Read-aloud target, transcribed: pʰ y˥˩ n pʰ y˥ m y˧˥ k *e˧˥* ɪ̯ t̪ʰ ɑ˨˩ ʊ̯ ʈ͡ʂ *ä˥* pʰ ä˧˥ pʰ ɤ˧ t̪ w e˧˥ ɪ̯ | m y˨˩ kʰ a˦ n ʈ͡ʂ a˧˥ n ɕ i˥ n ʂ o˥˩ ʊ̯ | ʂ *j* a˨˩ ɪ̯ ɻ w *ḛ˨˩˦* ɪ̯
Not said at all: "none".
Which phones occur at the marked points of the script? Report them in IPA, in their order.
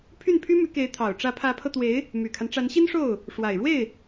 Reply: e˧˥, ä˧˥, w, e˥˩

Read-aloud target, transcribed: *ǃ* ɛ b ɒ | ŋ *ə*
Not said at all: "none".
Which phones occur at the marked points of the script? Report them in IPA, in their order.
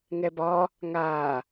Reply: ŋ, a

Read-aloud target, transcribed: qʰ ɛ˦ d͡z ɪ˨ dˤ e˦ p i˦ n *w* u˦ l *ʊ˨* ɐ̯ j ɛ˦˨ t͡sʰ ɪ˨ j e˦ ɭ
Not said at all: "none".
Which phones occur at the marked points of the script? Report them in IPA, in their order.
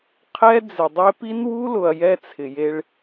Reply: w, ʊ˨

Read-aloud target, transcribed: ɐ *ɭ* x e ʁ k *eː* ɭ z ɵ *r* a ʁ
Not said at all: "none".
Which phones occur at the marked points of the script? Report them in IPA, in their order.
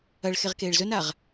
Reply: ɭ, eː, n

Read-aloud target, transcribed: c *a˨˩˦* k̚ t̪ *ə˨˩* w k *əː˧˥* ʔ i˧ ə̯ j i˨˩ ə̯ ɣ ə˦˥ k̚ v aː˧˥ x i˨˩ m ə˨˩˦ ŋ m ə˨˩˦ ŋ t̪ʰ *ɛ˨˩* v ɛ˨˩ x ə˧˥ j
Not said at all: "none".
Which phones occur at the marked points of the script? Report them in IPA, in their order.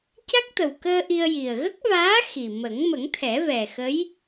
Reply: a˦˥, ə˨˩, əː˧, ɛ˨˩˦

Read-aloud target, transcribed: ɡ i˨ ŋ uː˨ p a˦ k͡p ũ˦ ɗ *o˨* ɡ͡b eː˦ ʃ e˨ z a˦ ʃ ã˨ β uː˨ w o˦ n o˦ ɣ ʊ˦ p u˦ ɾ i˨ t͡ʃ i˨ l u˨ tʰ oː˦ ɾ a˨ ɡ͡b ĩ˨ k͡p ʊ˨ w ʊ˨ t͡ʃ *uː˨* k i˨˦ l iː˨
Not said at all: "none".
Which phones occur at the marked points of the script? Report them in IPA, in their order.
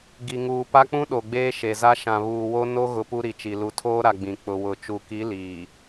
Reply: o˨, u˨

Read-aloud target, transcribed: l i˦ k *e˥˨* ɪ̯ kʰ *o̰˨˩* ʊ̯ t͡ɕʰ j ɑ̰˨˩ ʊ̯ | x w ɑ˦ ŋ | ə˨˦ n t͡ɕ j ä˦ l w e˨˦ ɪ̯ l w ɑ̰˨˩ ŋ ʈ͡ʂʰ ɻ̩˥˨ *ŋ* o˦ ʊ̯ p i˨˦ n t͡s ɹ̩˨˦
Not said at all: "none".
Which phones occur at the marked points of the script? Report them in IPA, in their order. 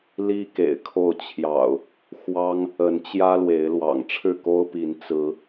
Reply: ḛ˨˩, o˥˨, k

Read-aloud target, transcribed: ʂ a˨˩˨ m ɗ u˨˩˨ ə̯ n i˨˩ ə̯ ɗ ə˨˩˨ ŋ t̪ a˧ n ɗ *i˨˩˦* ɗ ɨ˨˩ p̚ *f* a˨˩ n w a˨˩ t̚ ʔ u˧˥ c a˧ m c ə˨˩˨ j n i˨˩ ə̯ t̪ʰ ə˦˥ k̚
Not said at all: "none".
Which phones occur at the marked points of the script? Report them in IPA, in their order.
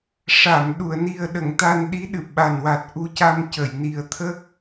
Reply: i˧˥, ɓ

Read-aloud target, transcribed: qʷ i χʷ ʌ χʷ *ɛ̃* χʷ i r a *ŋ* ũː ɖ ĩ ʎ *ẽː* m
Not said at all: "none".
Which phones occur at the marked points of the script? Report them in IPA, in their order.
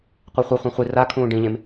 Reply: ɛ̃, kʰ, ẽ

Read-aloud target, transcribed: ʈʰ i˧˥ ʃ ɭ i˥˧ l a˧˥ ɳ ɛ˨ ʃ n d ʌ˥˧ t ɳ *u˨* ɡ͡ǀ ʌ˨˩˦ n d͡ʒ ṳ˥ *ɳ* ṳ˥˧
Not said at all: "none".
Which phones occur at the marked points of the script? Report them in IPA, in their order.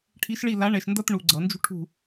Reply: u˨, ʈʰ

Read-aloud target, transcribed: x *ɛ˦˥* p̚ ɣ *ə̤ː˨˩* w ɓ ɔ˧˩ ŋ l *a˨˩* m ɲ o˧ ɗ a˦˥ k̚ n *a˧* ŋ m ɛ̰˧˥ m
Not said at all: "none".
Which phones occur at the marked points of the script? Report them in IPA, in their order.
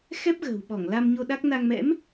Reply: ɛ˦˥, ə̤ː˨˩, a˧, a˧

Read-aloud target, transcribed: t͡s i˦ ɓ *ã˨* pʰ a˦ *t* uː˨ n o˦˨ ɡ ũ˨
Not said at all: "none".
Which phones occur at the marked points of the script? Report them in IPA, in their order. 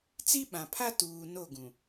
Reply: ã˨, t

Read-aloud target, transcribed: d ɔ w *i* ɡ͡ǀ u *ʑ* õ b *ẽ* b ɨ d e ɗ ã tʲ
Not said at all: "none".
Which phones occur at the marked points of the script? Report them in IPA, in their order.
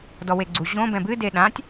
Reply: e, ʑ, ɛ̃

